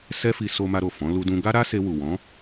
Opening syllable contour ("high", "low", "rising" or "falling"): high